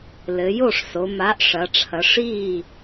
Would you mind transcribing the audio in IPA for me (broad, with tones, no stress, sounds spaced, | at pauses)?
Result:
l ɘ˩˧ j o˥˩ ʂ s o˩˧ m a˨˥ ʔ ʂ ɐ˩˧ ʈ͡ʂʰ ɐ˩˧ ʂ i˥˩